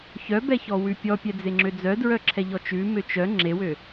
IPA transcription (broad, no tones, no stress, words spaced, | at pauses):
çœbɛçɔwʉ pʲɔpʲɛd͡zeŋ͡ǁø d͡zœdɹœǁʰɛʎɔ t͡ʃʉmø t͡ʃœ ŋ͡ǁewø